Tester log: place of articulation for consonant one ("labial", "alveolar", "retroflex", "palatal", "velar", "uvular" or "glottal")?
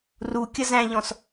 alveolar